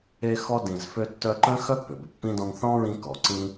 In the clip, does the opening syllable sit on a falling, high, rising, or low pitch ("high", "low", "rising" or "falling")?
high